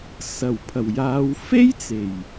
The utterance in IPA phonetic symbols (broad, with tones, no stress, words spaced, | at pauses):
sɐ˨˩wpʰɐ˨˩wjaː˨˧w fe˥jt͡se˨˩j